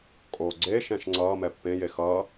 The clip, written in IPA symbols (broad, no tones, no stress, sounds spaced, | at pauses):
kʼ oː ɡ͡ǀ eː ʃ ɛ̃ ʃ ŋ͡ǀ ʌː m ɛ pː ẽ j e x ʌː